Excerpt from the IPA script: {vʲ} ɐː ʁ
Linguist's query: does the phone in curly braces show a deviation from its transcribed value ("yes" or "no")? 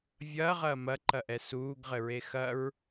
no